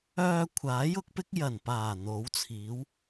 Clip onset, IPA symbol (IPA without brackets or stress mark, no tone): œː